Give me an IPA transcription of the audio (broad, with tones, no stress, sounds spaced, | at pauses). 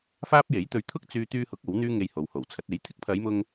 f aː˥ p̚ j e˨˥ j t̪ ɵ˧ ɥ t̪ʰ ʊ˥ k̚ t͡s yː˧ t̪ yː˧ h ʊ˨˥ k̚ o˨˥ w n̪ yː˥ ŋ e˧ j h o˨ w h o˨˩ w t͡sʰ ɐ˨˥ t̚ e˨˥ j t̪ʰ ɪ˥ k̚ pʰ ɐ˨˧ j m ʊ˧ ŋ